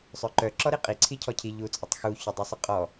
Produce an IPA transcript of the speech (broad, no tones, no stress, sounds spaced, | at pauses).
sˤ œ ǃ œ ǁ ɔ ɾ i qʼ i ǀʰ i cʰ ɔ cʰ i ʎ u t͡sʼ ə tˤ x u ç ɔ dˤ ʉ sˤ ɪ qʼ ɔ